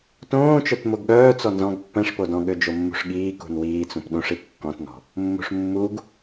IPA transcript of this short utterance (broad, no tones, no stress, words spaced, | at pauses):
tõːt͡ʃœt moɡɠœːt͡sɔ nzɔ̃ɡ pːɛ̃ʂpodɔ̃ ɠød͡ʒomːṳʂɠiː kṳnwiːt͡sũp ɗũʂi kːɔ̃tnɔ̤ | mːṳʂmːuɡ